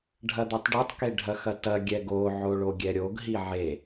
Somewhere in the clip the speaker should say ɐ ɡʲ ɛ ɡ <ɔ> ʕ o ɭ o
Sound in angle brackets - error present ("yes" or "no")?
yes